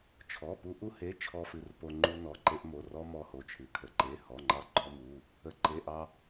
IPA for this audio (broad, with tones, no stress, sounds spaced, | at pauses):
t͡ʃʰ ɔ˩˧˩ p u˧ ʔ u˧ h e˩˧˩ t͡ʃʰ ɔ˧ f ɨ˩˧˩ r p o˧ ŋ͡ǃ u˧ n ɔ˩˧˩ ǃ e˧ ʔ m o˩˧˩ r ɔ˧ m ɔ˧ h o˩˧˩ t͡ʃʰ ɨ˩˧˩ kʰ ə˩˧˩ ǃ e˩˧˩ h ɔ˩˧˩ ŋ͡ǃ ɑ˧ ɡ͡ǃ ɔ˧ m u˩˧˩ | ə˩˧˩ ǃ e˩˧˩ ʔ ɑ˧